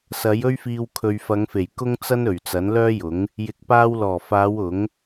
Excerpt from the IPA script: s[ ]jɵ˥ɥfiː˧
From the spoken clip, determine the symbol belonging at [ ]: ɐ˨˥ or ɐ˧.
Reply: ɐ˨˥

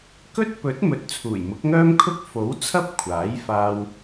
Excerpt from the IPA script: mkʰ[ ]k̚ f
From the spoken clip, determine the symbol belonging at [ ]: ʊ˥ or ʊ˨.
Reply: ʊ˥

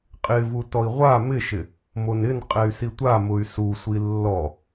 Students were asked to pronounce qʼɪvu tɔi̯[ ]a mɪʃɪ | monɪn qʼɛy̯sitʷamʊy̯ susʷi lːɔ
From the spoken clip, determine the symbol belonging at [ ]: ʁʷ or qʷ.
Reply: ʁʷ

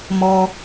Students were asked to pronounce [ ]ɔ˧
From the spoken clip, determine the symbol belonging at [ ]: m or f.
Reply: m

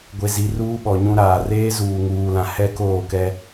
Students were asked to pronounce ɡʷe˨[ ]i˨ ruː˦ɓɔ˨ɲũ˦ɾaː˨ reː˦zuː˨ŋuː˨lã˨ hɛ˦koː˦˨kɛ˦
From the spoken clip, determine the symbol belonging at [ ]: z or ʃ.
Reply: z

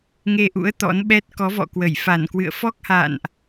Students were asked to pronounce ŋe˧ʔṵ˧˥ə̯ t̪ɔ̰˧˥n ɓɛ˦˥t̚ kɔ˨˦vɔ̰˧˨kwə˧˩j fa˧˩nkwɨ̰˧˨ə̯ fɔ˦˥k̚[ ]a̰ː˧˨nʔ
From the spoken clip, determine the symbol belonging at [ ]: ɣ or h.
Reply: h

